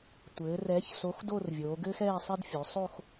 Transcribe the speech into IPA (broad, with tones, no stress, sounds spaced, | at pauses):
tʷ ɘː˩˧ r ɛː˨˥ ç s o˨˥ x d o˥˧ r vʲ oː˩˧ ɡ ɘː˥ x ɛː˥˧ sˤ e˥ d fʲ o˩˧ sˤ o˥˧ x